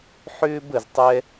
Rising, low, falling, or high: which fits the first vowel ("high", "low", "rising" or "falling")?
high